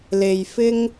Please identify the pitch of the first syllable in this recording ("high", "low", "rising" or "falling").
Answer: low